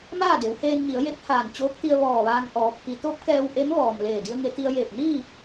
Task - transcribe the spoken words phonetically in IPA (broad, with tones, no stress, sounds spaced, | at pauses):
m aː˥˨ d e˩˧ w h eː˧ n ɲ i˩˧ ə̯ j e˧˥ p̚ h aː˧˩ n t͡ɕ oː˧˥ k̚ t̪ i˧ ə̯ ʋ ɔː˧˩ ʋ aː˧ ŋ ʔ ɔː˩˧ pʰ i˩˧ t̪ o˧˥ p̚ k ɛː˧ w ʔ e˧˥ m ʋ ɔː˩ m l eː˧˩ d i˧ ə̯ ŋ e˩˧ t̪ i˧ ə̯ j eː˧˩ p̚ n iː˥˨